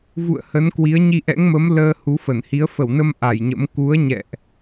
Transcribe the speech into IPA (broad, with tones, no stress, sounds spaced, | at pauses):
v ṵ˧˨ ə̯ h ə˨˦ n k w i˨˦ ə̯ ɲ i˧ ʔ ɛ̰˧˥ ŋ m ə˨˦ m l əː˧ h u˨˦ f ə˧˩ n h i˨˦ ə̯ f ə˧˩ w n ə˧ m ʔ a˧˩ j ɲ ə̰˧˥ m k u˨˦ ə̯ ɲ ɛ̰˧˨ ʔ